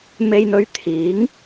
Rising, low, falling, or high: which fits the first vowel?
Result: low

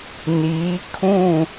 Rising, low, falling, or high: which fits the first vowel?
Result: rising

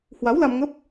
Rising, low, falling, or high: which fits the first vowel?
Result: rising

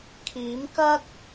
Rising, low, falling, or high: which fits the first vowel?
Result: rising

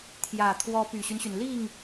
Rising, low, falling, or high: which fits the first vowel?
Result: low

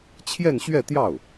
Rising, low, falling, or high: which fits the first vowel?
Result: falling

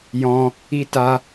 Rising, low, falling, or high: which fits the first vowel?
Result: high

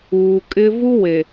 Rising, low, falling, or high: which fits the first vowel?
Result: low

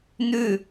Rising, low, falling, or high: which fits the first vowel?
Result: falling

